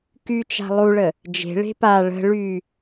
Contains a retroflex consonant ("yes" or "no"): yes